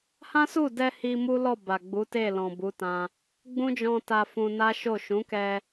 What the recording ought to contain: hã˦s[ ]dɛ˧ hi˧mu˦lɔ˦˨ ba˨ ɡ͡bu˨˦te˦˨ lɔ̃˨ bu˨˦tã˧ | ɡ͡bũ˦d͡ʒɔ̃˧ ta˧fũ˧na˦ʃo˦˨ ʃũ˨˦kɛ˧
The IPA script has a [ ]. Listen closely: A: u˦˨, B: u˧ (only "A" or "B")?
A